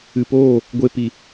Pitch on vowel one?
low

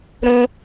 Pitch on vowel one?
high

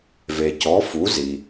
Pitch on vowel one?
low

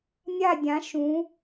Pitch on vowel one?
falling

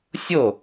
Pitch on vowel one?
falling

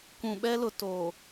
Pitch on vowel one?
low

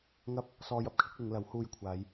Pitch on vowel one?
high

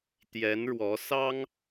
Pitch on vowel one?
rising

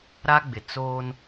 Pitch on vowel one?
high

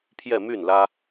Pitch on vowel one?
falling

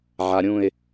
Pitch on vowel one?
low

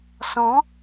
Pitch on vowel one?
rising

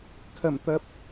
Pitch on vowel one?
low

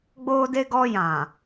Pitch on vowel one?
high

